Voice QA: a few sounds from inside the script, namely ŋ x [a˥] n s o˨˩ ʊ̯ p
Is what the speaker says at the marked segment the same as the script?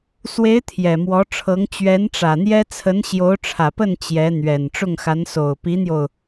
no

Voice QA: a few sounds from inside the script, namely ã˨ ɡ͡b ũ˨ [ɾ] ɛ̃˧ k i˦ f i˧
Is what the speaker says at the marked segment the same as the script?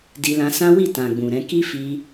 yes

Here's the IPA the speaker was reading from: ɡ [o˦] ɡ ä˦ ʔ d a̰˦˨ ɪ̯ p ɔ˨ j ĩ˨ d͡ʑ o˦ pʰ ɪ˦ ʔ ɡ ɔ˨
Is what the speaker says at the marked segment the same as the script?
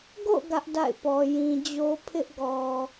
no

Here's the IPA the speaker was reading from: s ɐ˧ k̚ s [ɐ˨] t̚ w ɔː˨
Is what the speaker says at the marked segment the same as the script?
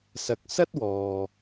no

